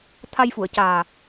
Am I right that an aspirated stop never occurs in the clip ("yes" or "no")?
no